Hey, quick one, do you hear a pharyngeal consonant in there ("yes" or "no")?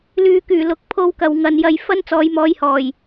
no